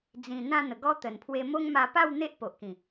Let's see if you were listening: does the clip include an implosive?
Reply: no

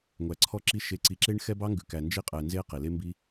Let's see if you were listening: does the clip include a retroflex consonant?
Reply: yes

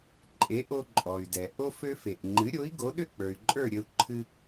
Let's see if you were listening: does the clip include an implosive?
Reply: yes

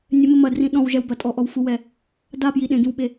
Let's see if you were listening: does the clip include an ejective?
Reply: yes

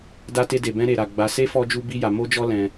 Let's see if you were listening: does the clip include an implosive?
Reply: no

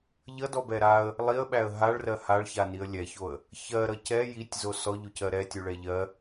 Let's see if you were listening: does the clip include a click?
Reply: no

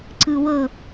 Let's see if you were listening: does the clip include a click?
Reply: yes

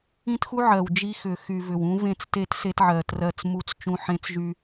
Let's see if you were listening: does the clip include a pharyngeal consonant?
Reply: yes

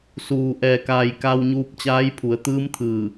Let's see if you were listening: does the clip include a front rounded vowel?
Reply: no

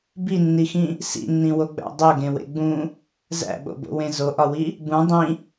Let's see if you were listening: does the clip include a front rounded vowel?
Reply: no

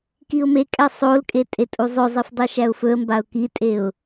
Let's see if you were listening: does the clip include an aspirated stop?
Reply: no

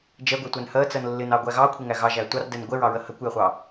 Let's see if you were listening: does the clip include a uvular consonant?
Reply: yes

